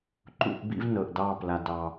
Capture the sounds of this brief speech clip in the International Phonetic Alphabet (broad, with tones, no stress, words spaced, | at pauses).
ǃṵ˦ʔ bḭ˦vnɤ˨ʔdɑ˦˨ pla˨dɑ˨